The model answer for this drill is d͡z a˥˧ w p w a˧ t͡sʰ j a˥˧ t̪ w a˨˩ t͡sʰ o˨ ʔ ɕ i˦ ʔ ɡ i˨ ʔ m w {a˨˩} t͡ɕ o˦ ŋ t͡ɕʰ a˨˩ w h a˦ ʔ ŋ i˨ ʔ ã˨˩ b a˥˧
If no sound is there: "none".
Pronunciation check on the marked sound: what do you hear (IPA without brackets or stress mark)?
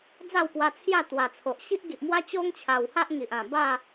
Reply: a˦